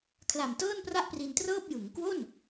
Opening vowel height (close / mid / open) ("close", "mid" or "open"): open